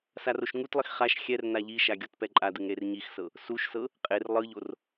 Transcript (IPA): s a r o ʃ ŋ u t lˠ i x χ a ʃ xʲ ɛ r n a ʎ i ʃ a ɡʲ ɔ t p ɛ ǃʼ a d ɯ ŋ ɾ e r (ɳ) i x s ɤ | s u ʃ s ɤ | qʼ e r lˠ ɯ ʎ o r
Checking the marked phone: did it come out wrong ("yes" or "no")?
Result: yes